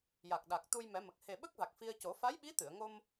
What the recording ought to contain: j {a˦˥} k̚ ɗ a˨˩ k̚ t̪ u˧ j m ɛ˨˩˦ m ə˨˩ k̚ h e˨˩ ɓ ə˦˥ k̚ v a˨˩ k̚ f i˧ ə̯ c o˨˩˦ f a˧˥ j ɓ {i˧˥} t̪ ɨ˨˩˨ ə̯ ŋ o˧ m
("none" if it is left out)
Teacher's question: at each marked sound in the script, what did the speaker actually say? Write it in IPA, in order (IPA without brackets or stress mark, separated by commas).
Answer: a˨˩, i˧˥